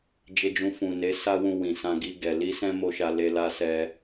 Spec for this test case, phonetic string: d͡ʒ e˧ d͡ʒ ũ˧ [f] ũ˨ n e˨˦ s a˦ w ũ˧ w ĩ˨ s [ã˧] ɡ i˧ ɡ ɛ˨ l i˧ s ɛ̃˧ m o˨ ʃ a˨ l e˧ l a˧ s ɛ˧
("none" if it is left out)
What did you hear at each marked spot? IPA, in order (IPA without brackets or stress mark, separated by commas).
f, ã˧